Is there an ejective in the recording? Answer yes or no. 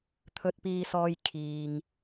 no